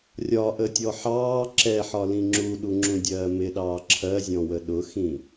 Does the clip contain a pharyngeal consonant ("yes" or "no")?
yes